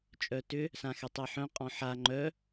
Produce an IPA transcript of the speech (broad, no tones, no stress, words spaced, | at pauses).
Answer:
t͡ʃʼœtʏ | sãxɛtˤeħœ̃ qʼɔ̃ħa ŋ͡ǃœ